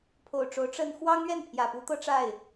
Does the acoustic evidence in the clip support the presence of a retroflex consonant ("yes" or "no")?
yes